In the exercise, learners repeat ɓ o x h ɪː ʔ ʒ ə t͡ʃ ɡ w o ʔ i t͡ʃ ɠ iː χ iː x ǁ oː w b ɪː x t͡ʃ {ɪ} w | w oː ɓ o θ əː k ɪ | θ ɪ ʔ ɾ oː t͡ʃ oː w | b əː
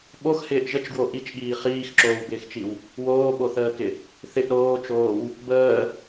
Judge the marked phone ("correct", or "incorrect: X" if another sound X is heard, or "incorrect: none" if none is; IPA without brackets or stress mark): incorrect: i